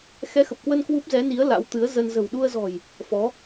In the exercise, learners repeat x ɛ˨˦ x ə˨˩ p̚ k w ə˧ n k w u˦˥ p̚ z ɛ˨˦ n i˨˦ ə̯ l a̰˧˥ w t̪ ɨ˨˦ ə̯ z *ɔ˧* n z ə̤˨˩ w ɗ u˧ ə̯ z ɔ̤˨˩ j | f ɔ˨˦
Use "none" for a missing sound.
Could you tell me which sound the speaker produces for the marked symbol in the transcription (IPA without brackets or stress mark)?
ə˧